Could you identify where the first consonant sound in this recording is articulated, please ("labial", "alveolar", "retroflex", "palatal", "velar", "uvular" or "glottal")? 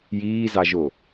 palatal